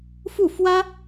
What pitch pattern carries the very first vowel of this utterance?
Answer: falling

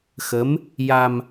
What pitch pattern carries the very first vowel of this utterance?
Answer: rising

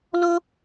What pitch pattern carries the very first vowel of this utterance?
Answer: high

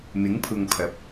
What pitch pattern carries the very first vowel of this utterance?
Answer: rising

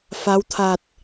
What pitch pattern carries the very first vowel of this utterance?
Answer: rising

